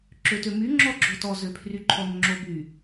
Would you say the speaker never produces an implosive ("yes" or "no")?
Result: yes